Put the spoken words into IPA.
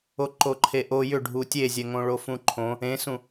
o ǃ o ǃʰ e ʔ o j ʏ ɖʱ u tʲ e zʲ ɛ ŋ õ ɭ o f ũ ǃʰ õ | ẽ s ũ

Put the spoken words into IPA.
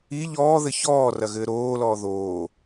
i ʎ ɔː ð ɘ ç ɔː r ɐ ɣ ɘː ɾ oː l ɔː ð oː

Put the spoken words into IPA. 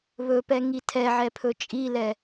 β ɵ p ɛ ŋ i tʰ ɛ ʕ ɛ pʰ ɵ t͡ʃʼ i l ɛ

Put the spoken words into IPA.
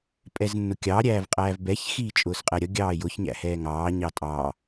pʼ ɛ z nː ʊ kʲ ɑ ɾʲ æː v qʼ æː v b ɛ ç x iː t͡ʃʼ ʊː s qʼ ɛ ɾʲ ʌ ɡʲ ɑː j ʊ ç ɲ æ̰ h ɛː ŋ ɑː ɲ ɑ tʼ ɑː

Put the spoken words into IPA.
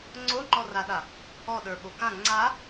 ŋ͡ǀ o ŋ͡ǃ ɔ r a ɗ a | ɔ ɗ ə˞ ɓ o k ã ŋ͡ǀ a

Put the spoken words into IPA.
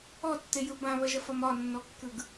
ɔ tː e j ɯ b ã β ɐ ʒ ɐ f ɒ m ɒ nː ɔ kː ɯ ɡ

